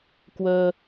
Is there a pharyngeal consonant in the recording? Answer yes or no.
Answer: no